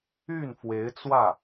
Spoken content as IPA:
y˥˩ n f w e˧˥ ɪ̯ t͡s w ä˥˩

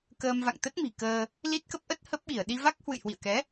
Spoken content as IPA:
k əː˧ m v a̰˧˨ ŋ t̪ ə˦˥ t̚ m i̤˨˩ k əː˧ | l i˦˥ t̚ k ə˦˥ p̚ ʔ ə˦˥ t̚ h ə˦˥ p̚ ɓ i˧˩ ə̯ ɗ i˧ v a˦˥ k̚ h w ɨ̰˧˨ j h w ḭ˧˨ ə̯ k ɛ˨˦

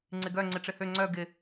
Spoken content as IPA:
ŋ͡ǀ ɪ ɡ œ ŋ͡ǀ ɪ ʈ͡ʂ ɪ h ø ŋ͡ǀ œ ɡ ɪ

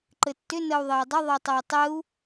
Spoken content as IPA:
ǃ ɘ tː ʏ n ə u̯ ðˤ e i̯ dˤ ʏ ðˤ ə u̯ tˤ ɤ u̯ tˤ ɘ u̯

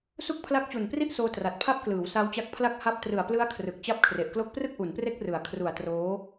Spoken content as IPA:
s u˥˩ k̚ pʰ l a˦˥ k̚ t͡ɕ u˨˩ n p r i˥˩ ʔ s oː˧ t r a˨˩ t̚ pʰ a˦˥ p̚ k l ɯː˩˦ w s a˦˥ w t͡ɕ a˦˥ k̚ pʰ l a˦˥ k̚ h a˥˩ p̚ t r ɯ˨˩ a̯ p l ɯ˦˥ a̯ kʰ r ɯ˨˩ k̚ t͡ɕ a˦˥ p̚ kʰ r e˨˩ ʔ k l o˦˥ k̚ p r ɯ˥˩ k̚ ʔ u˩˦ n p r e˦˥ k̚ r ɯ˩˦ a̯ kʰ r u˨˩ a̯ t r oː˦˥

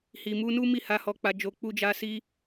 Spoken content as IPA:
h i˨ m u˧ n u˦ m i˦˨ h a˧ h ɔ˧ k͡p a˧ d͡ʒ o˧ k͡p u˦ d͡ʒ a˦ s i˦

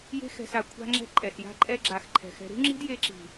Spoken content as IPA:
j e̤˦ x ɛ̤˧ s a˧ kʷʰ a̤˦ ŋ͡ǁ ɛ̤˦ ǃʼ ɛ˨ s j a̤˦ ǃʼ ɛ˧ ɡ͡ǁ a˨ x ǃʰ ɛ̤˨ x ɛ̤˧ ɾ ṳ˦ ŋ͡ǁ i̤˦ d j e˧ ǁ i̤˨

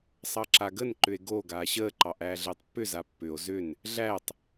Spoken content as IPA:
sˤ ɑ ǁ a ɡ ə n ǃ ʏ e̯ ɡ o ɡ aː ɕ əː ǃ ɑ ʔ æː ɮ əː tˤ pː ʏ z a pː ʏ o̯ z ʏ n | ɮ æ tˤ

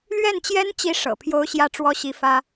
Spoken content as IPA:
l ɥ ɛ˥˩ n t͡ɕ j ɛ˥ n t͡ɕ i˥ ʂ ɤ̰˨˩ pʰ j o˥ ʊ̯ ɕ j ä˥˩ ʈ͡ʂ w ɔ˥ ɕ i˧˥ f ä˥

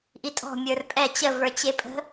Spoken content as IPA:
ʔ i tʼ ɔ̤ mʲ ə˞ r pʼ ɛ t͡ɕ ə v ə˞ t͡ɕ e pʼ ə̤

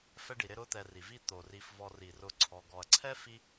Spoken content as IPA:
f ɛ˦ ɖ i˩ ɾ ɪ˦ ɾ ʊ˦ t̪ ɛ˨ r i˩ v i˦ t̪ o˩ r i˨ f v ɔ˨ r i˩ r ʊ˨ ǀʰ ɔ˨ ɡ ɔ˩ ɐ̯ ǀʰ ɛ˥ f i˥

